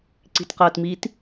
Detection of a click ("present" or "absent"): present